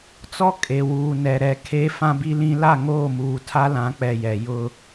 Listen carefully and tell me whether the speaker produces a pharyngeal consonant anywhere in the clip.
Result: no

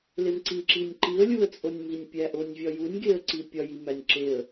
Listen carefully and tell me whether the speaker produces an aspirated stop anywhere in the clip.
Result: no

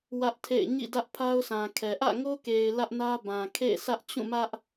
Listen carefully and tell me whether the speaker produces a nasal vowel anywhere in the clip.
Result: yes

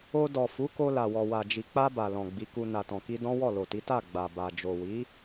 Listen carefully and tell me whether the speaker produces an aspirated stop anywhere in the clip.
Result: no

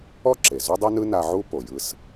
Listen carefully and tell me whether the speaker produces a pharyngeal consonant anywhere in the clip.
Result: yes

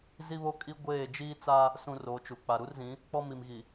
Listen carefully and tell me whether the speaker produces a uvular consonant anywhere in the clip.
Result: no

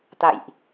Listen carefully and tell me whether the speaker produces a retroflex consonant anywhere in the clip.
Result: no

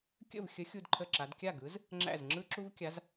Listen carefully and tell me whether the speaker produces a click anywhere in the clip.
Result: yes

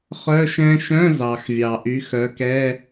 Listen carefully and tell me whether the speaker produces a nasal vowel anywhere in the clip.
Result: yes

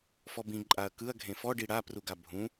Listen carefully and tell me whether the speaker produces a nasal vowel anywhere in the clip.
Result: yes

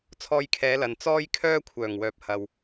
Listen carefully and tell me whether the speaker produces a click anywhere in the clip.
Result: no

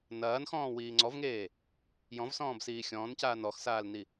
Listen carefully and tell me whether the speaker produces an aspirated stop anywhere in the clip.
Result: no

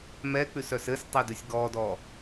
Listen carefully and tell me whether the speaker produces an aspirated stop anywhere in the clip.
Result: no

